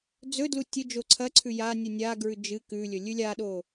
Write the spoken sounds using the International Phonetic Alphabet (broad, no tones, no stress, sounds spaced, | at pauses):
d͡z ɵ d l u tʲ ɵ d͡ʒ o ǀʰ ɐ ǀʰ ʉ j a nʲ u nʲ a ɡ ɹ ʉ d͡ʒ ɨ k ʉ lʲ ɵ lʲ ʉ lʲ a ɗ o